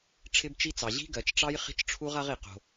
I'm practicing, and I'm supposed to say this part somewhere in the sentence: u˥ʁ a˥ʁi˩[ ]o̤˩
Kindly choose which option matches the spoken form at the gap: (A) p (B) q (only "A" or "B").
B